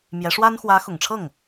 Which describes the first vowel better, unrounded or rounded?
unrounded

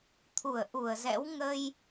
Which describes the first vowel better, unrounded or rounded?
rounded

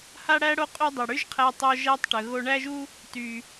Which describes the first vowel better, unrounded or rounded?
unrounded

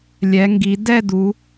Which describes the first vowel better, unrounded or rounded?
unrounded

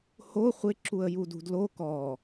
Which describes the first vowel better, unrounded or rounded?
rounded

